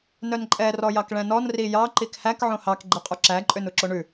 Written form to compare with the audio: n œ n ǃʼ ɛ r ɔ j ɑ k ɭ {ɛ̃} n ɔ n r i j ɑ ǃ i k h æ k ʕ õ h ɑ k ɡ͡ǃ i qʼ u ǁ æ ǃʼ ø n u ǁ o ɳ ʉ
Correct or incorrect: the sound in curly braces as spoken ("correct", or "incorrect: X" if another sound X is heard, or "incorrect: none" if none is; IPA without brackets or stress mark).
correct